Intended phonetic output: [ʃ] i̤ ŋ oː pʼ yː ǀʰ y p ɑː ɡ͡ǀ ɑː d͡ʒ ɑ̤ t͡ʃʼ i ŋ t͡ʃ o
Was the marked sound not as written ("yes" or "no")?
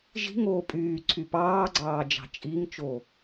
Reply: yes